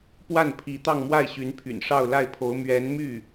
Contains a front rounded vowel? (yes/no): yes